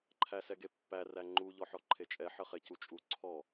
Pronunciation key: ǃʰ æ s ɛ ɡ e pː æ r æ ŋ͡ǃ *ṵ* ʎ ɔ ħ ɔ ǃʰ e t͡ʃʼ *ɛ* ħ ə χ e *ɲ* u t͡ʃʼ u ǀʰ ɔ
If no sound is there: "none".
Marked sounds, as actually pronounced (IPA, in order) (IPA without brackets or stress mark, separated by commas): u, ɛ, c